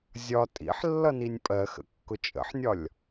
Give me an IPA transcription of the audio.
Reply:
zʲ ɒ tʼ ḭ ħ lː ʌ n i nʲ pʼ ɜ x ə̰ kː ʊ t͡ʃʼ ə̰ ħ nʲ ɒ lʲ

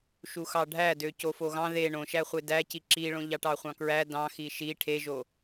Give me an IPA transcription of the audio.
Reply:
ʃ u x ɑ ɖʱ æ d ø c o f o ɣ ɑ̃ ð e ɳ õ ʃ æ χʷ e d æ c i ǁ i ɭ õ ʎ ɑ ʈ ɑ χʷ ɑ̃ k ɹ æ d ɑ̃ x i ʃ i ʈʰ e ʒ o

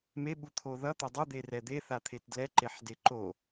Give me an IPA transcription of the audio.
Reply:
m e ɓ u t̪ʰ o ð ʌ t̪ ʌ dˤ ʌ d̪ e r ɛ d̪ e θ a t̪ʰ e t d l ɛ ǃ e ħ d e ǃ o

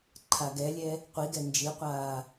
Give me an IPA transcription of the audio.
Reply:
ǃʰ a ɡ ɛ lʲ ɛ | qʷ i ɡ ɛ n d͡ʒ i qʷ aː

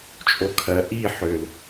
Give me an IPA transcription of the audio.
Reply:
t͡ʃʼ o kʰ ɜ ʔ i ħ ø l

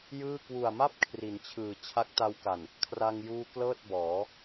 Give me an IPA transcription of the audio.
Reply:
j ɯː˥˩ k w u˨˩ a̯ m a˥˩ p̚ kʰ r i˩˦ n t͡ɕʰ ɯː˨˩ t͡ɕʰ a˦˥ k̚ t a˧ w k a˨˩ n | kʰ r a˧ ŋ j uː˧ k l ɤː˥˩ t̚ b ɔː˩˦

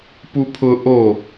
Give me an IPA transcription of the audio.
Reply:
p u pʰ ʊ ʔ o

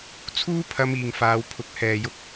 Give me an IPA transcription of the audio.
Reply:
t͡sʰ uː˥ pʰ ɐ˧ m iː˨ ŋ f aː˨˧ w pʰ ʊ˨ k̚ h ɛː˨ j ʊ˧ k̚

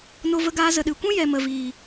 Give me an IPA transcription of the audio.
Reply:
n o˧ v ə˧ ɡ aː˧ z ə˨ ɗ ɨ˨ kʷ ũ˦ j ɛ˨ m ə˨ v iː˨

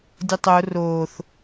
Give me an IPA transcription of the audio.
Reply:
dʲ ʊ tˤ o r oː θ

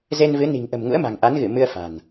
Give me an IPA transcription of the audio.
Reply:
z e˧ n v ɨ˨˦ n i̤˨˩ ŋ ʔ ə̤˨˩ m ŋ ṵ˧˥ ə̯ m a̤˨˩ ŋ ʔ a˨˦ n ɣ ɨ˧˩ m ɨ˧ ə̯ f a̤˨˩ n

